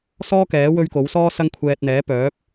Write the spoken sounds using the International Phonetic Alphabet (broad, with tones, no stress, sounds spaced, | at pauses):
s ɔː˥ k ɛː˨˥ w ɵ˧ ɥ k o˨˥ w s ɔː˥ s ɐ˥ ŋ kʷʰ ɛː˧ t̚ n̪ ɛː˨˥ p œː˨˥ p̚